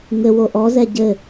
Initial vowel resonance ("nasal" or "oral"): oral